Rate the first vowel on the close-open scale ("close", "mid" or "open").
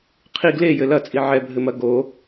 close